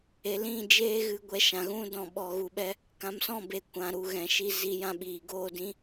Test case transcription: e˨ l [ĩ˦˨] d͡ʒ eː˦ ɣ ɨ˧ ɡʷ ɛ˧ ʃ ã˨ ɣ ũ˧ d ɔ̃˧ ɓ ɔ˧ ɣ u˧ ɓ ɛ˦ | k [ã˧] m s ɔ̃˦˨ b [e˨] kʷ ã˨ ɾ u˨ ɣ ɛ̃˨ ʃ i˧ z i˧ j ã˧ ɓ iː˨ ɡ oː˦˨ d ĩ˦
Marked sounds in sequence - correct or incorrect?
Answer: correct, incorrect, correct

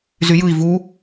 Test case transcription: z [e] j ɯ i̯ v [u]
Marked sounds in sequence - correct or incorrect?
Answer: incorrect, correct

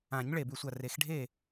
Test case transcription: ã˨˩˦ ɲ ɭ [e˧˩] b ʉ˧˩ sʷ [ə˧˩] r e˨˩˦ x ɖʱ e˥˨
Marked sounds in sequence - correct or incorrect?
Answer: correct, incorrect

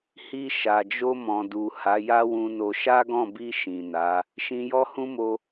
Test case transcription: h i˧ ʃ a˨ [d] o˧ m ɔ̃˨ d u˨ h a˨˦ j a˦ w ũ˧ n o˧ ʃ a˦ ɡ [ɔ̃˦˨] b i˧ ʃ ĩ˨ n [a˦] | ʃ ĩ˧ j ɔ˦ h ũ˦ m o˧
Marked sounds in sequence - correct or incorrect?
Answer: incorrect, correct, incorrect

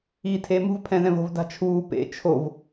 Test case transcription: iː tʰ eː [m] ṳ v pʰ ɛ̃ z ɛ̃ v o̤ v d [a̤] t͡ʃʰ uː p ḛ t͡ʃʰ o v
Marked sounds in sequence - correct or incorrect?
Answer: correct, correct

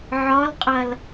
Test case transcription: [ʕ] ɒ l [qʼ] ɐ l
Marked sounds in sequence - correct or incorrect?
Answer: correct, correct

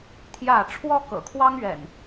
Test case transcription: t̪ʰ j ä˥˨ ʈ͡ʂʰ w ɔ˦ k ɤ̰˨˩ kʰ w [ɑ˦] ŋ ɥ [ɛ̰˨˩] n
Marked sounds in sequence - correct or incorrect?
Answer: correct, correct

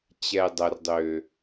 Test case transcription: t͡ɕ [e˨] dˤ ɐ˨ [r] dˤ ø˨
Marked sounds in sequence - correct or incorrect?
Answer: incorrect, correct

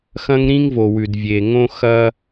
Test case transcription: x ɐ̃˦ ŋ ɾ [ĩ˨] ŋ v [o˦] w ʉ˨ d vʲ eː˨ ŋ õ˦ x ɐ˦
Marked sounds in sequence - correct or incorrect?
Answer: incorrect, incorrect

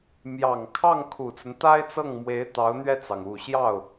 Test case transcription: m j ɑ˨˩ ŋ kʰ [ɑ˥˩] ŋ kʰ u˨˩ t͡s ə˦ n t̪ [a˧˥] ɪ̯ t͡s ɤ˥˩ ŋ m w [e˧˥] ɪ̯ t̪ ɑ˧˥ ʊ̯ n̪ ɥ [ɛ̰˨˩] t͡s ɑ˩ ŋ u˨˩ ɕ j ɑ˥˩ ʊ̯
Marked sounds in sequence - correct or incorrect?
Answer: correct, incorrect, correct, incorrect

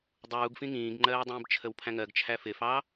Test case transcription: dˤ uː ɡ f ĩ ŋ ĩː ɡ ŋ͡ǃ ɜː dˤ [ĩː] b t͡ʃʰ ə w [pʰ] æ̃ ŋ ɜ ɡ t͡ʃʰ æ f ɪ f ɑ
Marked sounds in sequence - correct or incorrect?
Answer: correct, correct

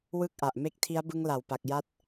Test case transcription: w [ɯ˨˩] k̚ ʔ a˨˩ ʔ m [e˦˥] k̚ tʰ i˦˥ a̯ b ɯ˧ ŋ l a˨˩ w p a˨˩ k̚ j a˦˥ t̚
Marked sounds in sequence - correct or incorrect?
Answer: incorrect, correct

